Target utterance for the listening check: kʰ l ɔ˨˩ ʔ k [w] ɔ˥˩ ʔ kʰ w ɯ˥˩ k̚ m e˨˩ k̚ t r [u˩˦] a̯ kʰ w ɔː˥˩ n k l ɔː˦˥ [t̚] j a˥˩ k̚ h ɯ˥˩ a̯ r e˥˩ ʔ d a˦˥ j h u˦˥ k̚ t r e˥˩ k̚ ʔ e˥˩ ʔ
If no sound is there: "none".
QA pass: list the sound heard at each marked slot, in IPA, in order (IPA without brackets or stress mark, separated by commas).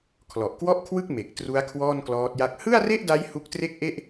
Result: w, u˦˥, t̚